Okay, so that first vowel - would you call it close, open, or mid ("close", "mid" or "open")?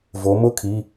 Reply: mid